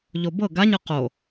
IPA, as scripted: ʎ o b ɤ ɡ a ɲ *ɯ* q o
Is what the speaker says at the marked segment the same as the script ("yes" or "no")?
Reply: yes